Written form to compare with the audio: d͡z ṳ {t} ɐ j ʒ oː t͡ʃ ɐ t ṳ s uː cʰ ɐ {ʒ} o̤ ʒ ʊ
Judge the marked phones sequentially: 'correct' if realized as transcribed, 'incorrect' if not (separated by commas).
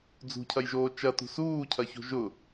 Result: incorrect, incorrect